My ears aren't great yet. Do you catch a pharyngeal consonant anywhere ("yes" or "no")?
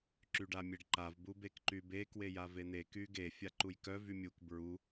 no